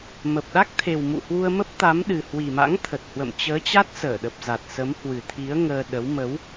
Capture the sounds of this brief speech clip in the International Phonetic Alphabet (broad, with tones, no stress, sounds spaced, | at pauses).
m ə˨˩ p̚ ɗ a˦˥ k̚ t̪ʰ e˨˩ w m ṵ˧˨ h w u˧ ə̯ m ə˦˥ p̚ t̪ a˨˦ m ɗ ɨ˨˩ h w i˨˩ m a̰˧˥ ŋ t̪ʰ ə˨˩ t̚ h w ə̰˧˨ m t͡ɕ əː˨˦ t͡ɕ a˦˥ t̚ s əː˧˩ ɗ ə˨˩ p̚ z a˨˩ t̚ s ə˨˦ m h w ɨ˨˩ t̪ʰ i˨˦ ə̯ ŋ əː˧ ɗ ə˨˦ w m ə˨˦ w